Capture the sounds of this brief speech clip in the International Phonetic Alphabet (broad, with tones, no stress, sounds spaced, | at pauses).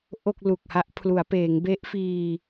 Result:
ʔ o˥˩ k̚ l u˨˩ k̚ h a˦˥ ʔ pʰ l u˩˦ a̯ p eː˩˦ ŋ b e˦˥ ʔ f iː˧